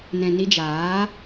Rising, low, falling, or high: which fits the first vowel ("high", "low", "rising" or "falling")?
low